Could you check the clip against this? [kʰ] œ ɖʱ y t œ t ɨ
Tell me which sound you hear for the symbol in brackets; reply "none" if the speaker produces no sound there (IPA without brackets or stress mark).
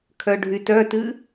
kʰ